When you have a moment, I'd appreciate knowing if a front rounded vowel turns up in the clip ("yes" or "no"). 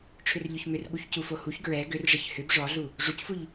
yes